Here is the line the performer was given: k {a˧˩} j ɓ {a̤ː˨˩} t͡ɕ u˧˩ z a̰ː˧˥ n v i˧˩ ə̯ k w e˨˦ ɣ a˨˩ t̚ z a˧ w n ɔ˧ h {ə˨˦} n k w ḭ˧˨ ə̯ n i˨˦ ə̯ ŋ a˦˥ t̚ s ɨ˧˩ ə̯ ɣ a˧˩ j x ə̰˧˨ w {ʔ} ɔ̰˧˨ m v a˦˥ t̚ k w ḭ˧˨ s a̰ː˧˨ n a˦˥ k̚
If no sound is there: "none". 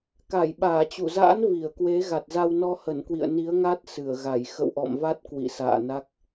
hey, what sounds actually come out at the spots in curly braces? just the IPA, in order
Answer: a˧˩, aː˧˩, ə˧˩, ʔ

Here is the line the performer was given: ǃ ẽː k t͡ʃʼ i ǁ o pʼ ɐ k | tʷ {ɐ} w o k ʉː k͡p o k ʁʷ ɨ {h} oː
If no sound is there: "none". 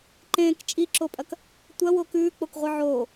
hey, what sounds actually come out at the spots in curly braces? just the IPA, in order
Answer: ɐ, ʕ

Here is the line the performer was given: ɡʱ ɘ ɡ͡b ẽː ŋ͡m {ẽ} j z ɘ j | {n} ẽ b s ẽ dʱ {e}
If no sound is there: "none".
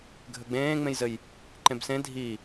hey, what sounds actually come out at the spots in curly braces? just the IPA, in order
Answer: ẽ, ǃ, i

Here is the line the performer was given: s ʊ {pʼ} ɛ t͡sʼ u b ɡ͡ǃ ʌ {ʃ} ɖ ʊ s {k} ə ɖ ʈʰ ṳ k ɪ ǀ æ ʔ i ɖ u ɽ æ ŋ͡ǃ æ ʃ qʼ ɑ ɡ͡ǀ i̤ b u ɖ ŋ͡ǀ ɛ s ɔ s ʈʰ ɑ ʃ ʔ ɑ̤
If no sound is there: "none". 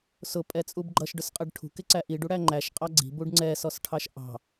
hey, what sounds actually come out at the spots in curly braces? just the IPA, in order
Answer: pʼ, ʃ, qʼ

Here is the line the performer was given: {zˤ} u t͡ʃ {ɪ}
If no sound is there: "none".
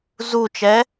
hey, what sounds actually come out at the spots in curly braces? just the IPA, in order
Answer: z, ɛ

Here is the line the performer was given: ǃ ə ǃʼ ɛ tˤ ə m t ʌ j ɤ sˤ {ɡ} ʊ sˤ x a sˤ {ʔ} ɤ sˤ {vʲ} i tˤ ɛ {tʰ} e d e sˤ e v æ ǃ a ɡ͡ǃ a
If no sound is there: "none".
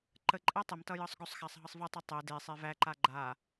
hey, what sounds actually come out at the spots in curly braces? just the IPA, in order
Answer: ɡ, ɦ, v, tˤ

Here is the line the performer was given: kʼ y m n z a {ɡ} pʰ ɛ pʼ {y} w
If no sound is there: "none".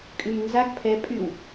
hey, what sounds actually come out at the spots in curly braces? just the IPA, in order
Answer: ɡ, y

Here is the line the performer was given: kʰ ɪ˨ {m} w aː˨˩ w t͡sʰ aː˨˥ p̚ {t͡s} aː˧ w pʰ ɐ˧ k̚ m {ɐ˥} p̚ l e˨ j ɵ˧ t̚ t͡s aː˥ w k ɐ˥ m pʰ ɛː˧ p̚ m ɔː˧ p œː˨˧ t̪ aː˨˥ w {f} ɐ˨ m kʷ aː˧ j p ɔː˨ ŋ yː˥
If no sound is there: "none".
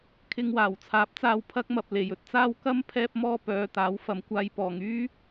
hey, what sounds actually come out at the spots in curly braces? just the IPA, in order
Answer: ŋ, t͡s, ɐ˨, f

